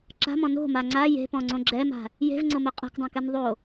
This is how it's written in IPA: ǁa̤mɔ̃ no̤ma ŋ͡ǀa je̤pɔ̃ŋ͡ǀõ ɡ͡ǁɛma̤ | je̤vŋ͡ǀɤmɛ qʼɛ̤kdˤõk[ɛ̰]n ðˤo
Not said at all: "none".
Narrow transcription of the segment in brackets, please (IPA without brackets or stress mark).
ɛ